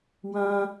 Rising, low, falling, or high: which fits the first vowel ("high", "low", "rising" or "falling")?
high